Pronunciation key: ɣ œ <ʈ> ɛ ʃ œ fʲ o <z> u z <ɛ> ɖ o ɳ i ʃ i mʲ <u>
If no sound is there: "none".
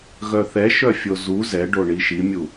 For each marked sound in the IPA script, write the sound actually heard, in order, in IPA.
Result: θ, z, ɛ, u

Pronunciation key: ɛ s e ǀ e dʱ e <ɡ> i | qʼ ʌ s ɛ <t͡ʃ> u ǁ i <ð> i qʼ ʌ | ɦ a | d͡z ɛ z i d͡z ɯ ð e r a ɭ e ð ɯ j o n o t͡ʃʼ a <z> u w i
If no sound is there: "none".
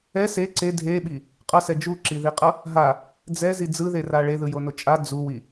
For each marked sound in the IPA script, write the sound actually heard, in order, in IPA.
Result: ɓ, d͡ʒ, ð, d͡z

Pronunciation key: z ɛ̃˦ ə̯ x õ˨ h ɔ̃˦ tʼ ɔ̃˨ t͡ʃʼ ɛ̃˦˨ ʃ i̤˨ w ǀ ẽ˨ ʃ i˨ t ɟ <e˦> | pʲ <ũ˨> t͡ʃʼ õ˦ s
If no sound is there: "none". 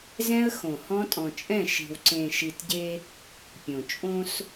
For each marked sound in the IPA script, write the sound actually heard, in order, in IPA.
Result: e˦, õ˨

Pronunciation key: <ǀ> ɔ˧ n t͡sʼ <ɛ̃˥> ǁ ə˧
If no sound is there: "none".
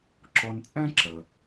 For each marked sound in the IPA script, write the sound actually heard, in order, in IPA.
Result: ǁ, ɛ̃˥

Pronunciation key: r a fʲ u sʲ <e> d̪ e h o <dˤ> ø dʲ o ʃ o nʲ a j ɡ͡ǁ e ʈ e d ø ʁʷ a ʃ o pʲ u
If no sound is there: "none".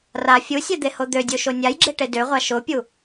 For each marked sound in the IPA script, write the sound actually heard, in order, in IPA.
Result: ɛ, d̪

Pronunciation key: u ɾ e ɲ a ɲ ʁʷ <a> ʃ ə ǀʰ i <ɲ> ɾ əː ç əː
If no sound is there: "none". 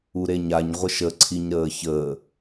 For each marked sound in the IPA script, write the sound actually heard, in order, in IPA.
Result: ə, ɲ

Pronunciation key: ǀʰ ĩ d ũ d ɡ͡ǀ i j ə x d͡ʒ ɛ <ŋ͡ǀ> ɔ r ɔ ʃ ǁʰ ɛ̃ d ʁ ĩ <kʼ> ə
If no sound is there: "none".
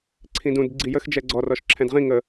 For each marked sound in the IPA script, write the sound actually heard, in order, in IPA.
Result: ɡ͡ǀ, ŋ

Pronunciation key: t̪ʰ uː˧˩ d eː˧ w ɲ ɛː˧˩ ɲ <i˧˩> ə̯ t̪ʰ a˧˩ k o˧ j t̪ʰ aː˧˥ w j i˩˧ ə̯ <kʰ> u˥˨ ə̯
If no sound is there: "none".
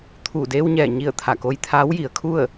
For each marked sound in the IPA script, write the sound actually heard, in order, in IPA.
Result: i˧˩, kʰ

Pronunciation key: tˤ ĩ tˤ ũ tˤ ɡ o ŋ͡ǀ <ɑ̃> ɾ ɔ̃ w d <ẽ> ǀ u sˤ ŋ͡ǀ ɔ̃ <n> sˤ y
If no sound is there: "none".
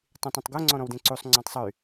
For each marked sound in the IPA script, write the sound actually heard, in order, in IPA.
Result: ɔ̃, ẽ, tˤ

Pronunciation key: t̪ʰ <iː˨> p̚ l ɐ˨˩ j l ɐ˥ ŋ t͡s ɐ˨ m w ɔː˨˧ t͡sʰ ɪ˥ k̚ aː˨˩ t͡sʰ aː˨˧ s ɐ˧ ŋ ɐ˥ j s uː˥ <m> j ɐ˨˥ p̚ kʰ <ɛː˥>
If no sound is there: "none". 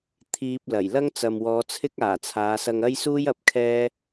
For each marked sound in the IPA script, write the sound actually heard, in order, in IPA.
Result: iː˧, none, ɛː˥

